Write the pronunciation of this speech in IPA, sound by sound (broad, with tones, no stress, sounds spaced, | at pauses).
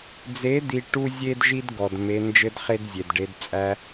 d͡z e˨˦ d̪ i˨ ʈ u˦ zʲ e˦ d ʒ i˦ d ɡ ɔ˨ d m e˧ n d͡ʒ ɘ˦ d χ e˦ d zʲ e˨ d ɖ e˧ d t͡sʼ æ˧